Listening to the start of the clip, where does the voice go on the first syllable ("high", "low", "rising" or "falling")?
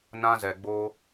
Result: high